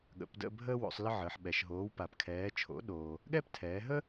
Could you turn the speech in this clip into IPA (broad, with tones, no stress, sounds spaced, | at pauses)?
ɠ ə̰˩˧ p d ə̰˦˨ bʱ əː˥ w o̰˩˧ sˤ l ə˥ ʕ əː˩˧ ħ ɓ ɛ˩˧ ʃ ɦ oː˨˥ w p a˩˧ p kʰ ɛː˨˥ t͡ʃʰ o̰˨˥ ɗ oː˩ | ɠ ɛ˥ p tʰ ɛː˩˧ ɦ ə˥